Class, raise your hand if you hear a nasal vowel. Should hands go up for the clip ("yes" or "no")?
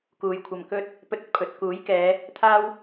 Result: no